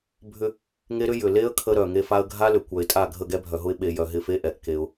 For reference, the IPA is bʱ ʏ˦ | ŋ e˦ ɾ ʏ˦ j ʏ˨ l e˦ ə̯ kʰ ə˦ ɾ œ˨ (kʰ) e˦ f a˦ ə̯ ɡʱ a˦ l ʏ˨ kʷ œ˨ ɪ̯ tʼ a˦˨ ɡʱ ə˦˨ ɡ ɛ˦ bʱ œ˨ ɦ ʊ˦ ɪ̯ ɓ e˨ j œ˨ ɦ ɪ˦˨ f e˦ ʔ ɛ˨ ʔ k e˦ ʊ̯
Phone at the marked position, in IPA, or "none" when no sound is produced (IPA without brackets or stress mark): ŋ